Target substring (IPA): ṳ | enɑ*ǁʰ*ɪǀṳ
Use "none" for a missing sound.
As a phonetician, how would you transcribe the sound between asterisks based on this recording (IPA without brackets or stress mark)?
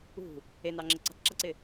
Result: ŋ͡ǁ